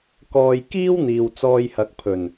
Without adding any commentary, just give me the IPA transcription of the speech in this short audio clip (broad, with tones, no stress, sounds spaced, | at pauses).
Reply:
k ɔː˧ j k iː˥ w n̪ iː˨ w t͡s ɔː˧ j h ɐ˨˥ k̚ pʰ ɵ˨˩ n